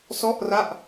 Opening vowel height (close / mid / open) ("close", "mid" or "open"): mid